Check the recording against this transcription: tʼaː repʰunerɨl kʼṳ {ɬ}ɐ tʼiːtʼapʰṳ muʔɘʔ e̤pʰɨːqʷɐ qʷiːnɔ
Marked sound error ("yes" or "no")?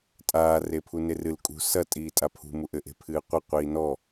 yes